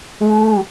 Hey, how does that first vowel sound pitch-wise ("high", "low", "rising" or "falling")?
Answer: high